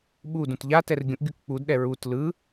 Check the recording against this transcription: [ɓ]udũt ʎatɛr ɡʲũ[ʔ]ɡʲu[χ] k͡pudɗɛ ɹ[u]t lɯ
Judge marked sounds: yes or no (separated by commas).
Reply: yes, yes, no, yes